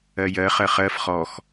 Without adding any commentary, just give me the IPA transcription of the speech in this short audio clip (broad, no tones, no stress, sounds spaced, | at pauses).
ɜ j ɜ χ ɜ χ ɜ f χ ɔ x